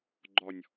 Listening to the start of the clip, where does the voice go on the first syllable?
low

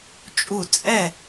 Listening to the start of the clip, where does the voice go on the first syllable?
falling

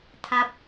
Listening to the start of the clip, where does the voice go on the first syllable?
low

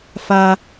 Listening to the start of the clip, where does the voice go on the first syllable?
high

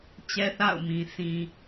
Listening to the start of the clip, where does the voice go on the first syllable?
high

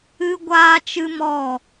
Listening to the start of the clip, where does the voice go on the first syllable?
high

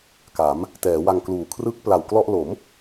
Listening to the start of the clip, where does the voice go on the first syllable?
rising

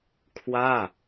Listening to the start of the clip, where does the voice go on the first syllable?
falling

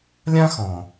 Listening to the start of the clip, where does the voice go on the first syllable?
high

